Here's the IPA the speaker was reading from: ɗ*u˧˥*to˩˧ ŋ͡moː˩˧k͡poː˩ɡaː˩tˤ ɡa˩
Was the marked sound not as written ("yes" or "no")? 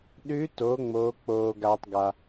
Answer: yes